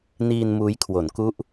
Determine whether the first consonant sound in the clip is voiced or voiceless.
voiced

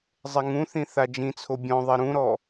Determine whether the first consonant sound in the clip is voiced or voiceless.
voiced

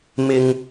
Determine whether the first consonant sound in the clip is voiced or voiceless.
voiced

